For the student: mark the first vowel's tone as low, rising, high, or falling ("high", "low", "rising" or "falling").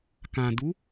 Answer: low